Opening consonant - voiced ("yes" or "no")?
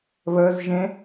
yes